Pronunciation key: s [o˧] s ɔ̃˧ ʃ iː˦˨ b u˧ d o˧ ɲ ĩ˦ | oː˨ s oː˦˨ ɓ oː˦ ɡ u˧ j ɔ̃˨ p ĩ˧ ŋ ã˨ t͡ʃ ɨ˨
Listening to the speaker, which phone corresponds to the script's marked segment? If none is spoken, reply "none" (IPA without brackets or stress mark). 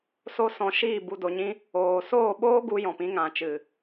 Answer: o˦